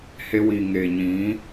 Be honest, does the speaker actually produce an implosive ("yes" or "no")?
no